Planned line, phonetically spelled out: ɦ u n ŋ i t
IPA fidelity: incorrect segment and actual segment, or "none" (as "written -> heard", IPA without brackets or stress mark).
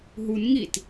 none